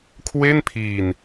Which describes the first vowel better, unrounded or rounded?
unrounded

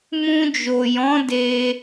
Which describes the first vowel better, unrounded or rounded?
rounded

